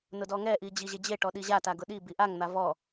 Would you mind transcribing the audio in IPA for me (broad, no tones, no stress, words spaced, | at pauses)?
nʊdɔŋɛʔi d͡ʑiʑed͡ʑeʈɔ ɗiʑata ɡʊɗibi ʔaŋn̪a vɔ